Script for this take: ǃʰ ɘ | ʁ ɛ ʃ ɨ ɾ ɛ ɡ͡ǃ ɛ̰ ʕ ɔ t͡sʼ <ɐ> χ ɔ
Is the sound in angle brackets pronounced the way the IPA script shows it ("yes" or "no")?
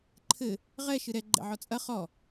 yes